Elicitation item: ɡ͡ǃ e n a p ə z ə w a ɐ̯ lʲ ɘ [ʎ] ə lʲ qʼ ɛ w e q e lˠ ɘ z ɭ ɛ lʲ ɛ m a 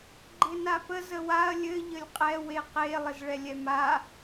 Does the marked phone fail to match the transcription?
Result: no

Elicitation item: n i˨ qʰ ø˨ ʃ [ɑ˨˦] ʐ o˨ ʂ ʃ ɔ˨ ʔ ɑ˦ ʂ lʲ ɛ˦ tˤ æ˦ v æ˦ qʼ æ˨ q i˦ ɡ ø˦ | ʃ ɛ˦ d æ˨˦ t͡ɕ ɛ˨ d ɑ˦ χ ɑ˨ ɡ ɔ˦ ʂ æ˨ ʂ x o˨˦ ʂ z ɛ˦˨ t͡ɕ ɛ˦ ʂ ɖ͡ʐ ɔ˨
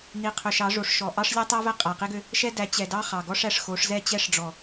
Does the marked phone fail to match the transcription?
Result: no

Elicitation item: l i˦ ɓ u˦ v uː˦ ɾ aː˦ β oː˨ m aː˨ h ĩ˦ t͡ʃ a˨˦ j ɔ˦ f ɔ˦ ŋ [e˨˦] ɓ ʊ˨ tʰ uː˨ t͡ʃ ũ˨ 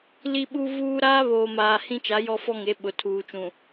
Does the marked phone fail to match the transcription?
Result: no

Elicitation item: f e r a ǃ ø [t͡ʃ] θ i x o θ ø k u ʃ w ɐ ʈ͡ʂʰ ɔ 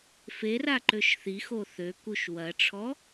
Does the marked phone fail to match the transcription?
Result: yes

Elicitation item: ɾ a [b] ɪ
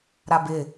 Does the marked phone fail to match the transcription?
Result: no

